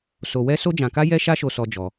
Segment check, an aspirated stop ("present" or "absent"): absent